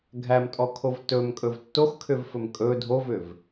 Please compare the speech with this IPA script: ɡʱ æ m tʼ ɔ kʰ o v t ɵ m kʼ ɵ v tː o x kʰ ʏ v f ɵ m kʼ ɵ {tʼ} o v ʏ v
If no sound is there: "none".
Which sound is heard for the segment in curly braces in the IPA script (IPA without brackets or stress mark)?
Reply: dʱ